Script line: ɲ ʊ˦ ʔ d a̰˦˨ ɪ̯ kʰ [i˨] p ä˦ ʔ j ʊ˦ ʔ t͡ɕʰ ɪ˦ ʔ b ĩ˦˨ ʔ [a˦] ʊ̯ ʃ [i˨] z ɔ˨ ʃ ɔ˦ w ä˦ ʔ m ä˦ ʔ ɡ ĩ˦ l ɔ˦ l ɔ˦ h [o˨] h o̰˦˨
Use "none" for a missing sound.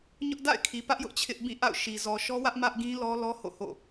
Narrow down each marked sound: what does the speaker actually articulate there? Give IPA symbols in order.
i˨, a̰˦˨, i˨, o̰˦˨

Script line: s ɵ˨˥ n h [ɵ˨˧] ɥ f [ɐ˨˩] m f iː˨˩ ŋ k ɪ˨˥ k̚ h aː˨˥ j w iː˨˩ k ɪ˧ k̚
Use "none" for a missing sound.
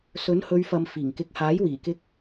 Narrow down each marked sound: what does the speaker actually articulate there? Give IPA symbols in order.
ɵ˨˧, ɐ˨

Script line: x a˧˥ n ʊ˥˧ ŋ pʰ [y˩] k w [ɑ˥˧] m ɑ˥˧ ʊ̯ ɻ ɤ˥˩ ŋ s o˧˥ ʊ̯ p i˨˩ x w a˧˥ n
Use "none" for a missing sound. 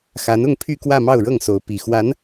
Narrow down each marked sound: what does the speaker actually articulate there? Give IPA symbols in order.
y˥˧, ä˥˧

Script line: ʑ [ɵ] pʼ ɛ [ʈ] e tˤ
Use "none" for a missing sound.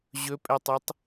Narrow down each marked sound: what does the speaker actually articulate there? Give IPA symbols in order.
ɵ, tˤ

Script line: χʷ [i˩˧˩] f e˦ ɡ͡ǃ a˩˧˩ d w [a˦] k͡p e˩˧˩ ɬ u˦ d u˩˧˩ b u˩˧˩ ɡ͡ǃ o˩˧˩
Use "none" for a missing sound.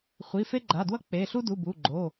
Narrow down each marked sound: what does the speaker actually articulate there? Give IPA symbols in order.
i˩˧˩, ʌ˦

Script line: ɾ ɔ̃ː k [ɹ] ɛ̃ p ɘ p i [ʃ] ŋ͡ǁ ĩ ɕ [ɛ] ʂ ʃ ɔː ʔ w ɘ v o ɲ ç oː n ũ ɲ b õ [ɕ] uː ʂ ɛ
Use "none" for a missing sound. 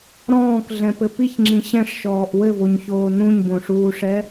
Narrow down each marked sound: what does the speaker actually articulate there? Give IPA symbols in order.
ɮ, ç, ɛ̃, ʂ

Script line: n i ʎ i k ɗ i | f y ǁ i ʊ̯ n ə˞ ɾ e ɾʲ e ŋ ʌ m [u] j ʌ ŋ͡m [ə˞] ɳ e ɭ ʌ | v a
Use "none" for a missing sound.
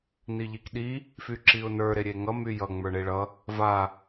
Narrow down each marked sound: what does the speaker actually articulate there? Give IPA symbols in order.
y, ə˞

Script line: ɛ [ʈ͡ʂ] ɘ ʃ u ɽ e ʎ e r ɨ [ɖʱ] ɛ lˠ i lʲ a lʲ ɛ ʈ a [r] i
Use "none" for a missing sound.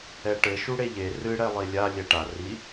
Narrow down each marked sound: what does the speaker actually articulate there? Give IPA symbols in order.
ʈ, ɽ, r

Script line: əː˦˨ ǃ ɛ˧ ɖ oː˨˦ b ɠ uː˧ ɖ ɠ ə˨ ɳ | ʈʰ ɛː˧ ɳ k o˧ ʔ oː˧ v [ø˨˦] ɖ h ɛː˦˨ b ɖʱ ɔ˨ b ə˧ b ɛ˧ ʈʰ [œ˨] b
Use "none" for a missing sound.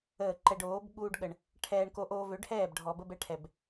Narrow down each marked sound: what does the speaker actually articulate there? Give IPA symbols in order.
ø˨˦, ɛ˨

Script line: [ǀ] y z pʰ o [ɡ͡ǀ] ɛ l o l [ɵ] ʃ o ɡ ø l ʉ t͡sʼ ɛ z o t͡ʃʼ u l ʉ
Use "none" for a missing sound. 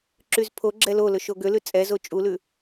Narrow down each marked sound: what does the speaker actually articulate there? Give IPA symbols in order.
ǁ, ɡ͡ǁ, ɵ

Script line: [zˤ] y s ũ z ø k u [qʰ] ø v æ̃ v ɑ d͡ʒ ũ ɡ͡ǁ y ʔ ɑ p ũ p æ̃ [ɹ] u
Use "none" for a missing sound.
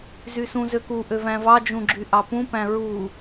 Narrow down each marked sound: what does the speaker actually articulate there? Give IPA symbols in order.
z, ʔ, ɹ

